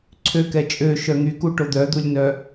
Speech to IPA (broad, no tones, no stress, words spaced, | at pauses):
ǀʰøkɛ t͡ʃʼøʃœ ŋykuʈo d̪œd̪ulʲnœ